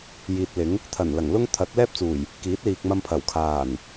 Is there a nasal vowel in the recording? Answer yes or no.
no